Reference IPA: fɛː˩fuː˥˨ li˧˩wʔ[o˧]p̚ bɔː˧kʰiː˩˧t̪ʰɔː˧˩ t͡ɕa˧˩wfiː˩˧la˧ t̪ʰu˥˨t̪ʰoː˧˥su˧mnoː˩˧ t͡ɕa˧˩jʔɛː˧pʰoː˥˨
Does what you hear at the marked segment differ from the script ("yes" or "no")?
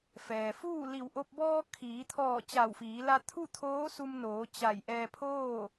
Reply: no